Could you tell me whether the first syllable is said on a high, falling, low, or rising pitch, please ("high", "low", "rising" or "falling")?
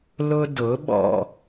high